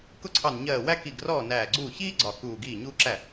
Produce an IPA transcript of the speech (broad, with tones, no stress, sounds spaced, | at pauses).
k ʊ˥˩ ǀʰ ɑ˧˩ n ɲ ɜː˧˩ w æ˥ k i˧˩ ɡ r ɔː˥˩ n æː˧˩ ɡ͡ǀ uː˥˩ ç iː˥ ɡ͡ǀ ɒ˧˩ k uː˧˩ ɡ iː˥˩ ɲ uː˥ ǁ æ˥˩